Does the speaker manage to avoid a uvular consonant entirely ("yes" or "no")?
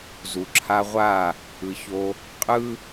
no